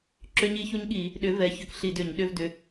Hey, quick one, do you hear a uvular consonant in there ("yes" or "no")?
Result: no